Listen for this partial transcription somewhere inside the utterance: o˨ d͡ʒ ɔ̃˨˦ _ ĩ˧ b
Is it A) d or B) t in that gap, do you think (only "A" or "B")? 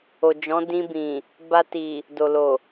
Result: A